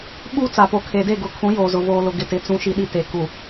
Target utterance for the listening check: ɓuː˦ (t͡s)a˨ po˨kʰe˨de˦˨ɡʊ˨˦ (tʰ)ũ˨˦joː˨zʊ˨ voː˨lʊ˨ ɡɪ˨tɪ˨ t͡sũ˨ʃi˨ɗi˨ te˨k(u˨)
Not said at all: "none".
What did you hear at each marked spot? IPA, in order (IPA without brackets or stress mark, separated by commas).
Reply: t͡s, kʰ, u˨